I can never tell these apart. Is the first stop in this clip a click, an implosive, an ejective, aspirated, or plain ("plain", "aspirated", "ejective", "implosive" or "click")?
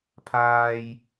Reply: aspirated